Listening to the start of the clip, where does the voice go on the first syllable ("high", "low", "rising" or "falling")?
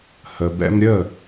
low